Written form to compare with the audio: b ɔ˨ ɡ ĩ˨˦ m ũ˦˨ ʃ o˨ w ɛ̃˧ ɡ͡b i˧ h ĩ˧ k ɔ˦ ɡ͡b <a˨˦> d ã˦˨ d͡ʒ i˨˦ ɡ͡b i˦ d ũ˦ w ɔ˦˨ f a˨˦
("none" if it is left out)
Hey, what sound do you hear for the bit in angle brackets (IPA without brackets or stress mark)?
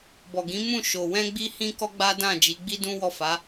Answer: a˦